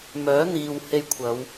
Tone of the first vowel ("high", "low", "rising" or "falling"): rising